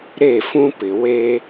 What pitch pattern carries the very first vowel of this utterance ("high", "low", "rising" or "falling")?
falling